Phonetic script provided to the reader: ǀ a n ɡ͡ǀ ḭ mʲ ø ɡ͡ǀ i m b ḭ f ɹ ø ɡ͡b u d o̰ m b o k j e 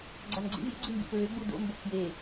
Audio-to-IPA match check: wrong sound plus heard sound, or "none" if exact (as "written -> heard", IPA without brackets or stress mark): ǀ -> ɡ͡ǀ